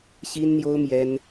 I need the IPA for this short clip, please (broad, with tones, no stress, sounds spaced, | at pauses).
ɕ i˥ n n̪ j o˥ ʊ̯ m j ɛ˥ n